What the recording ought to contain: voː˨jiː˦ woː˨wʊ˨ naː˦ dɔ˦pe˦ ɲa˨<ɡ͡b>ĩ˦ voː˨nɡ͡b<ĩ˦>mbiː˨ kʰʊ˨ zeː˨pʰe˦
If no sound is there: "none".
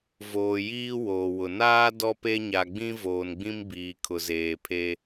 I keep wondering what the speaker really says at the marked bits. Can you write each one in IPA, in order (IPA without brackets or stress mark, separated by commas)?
ɡ͡b, ĩ˦